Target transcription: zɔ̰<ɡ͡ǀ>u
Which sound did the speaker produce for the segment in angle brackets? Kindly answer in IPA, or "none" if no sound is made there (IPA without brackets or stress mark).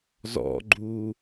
ɡ͡ǃ